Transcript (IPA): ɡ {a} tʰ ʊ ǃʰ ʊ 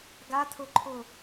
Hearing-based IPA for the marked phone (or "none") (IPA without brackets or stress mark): a